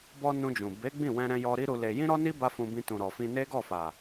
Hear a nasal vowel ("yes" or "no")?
yes